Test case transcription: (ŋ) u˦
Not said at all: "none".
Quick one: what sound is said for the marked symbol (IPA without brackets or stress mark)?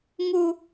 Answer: ŋ